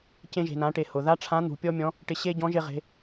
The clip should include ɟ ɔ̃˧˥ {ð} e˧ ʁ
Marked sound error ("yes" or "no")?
yes